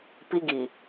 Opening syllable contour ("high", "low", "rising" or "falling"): high